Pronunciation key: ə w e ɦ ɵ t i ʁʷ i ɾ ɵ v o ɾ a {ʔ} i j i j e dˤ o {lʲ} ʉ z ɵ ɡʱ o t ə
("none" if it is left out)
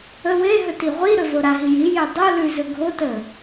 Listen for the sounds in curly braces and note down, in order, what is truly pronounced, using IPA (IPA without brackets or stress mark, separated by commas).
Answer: ɦ, l